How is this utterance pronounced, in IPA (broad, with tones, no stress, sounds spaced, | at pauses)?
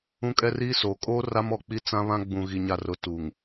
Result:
ũ˦ kʼ ɛ˦ r iː˦ s oː˨ kʼ oː˦ r a˦ m ɔ˨ k͡p i˦ t͡s ã˦ β ã˦ ɡ͡b ũ˨ ɣ i˨ ɲ a˨ r ʊ˨ t u˨ ŋ